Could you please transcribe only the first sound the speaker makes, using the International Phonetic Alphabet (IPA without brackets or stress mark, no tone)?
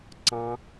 ǀ